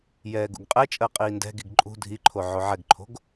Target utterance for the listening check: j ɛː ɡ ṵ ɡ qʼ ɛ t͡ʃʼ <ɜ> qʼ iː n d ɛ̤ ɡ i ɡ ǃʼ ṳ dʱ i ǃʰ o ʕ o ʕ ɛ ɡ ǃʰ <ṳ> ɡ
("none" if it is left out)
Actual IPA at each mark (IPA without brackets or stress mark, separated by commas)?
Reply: ɜ, o̤